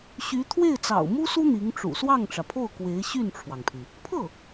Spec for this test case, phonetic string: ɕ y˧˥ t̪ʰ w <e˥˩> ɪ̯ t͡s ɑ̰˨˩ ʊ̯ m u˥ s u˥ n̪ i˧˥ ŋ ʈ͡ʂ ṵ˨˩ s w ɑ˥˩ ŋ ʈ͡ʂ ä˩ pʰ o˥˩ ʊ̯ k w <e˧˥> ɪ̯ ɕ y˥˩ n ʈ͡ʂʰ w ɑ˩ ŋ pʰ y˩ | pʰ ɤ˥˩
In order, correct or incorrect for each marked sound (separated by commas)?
correct, correct